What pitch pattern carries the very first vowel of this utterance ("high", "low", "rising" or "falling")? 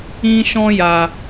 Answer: high